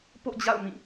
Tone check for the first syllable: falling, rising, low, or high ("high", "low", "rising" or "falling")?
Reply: falling